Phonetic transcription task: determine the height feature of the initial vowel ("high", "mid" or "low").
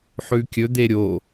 high